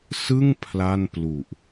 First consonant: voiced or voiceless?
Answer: voiceless